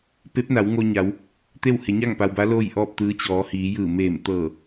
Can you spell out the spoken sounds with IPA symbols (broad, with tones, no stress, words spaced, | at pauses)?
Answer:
pe˧˥p̚na˩˧wŋo˧ɲa˩˧w | t̪e˥˨w he˩˧ɲa˥˨ŋpa˩wba˧˥ loː˥˨jʔɔː˥˨p̚t̪ɯː˧˥ t͡ɕɔː˩˧hiː˩˧ jɯː˧˩meː˧˩m t̪ɤː˧˩